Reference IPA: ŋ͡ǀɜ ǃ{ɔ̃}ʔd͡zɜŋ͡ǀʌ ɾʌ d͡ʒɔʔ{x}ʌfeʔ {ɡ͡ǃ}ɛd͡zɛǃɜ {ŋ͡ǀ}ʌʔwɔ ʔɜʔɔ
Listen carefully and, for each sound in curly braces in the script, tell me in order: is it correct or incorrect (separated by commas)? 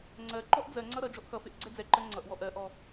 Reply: incorrect, correct, incorrect, correct